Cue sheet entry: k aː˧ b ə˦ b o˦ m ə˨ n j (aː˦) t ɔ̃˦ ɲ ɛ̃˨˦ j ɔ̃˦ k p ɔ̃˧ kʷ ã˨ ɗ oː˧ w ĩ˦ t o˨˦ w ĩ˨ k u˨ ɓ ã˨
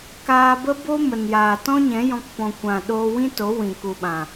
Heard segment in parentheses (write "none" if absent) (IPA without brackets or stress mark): aː˨